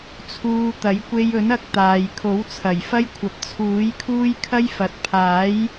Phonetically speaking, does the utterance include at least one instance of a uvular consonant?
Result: no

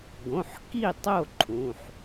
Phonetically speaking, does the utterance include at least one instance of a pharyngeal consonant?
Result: yes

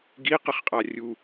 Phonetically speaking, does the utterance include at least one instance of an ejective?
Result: yes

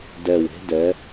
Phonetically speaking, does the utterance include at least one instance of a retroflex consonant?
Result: no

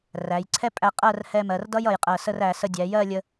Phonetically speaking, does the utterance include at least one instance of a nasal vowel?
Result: no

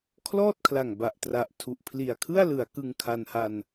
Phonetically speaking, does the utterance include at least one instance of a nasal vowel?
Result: no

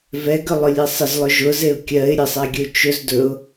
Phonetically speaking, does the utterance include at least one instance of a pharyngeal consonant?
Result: no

